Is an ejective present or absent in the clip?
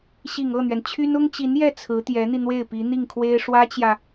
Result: absent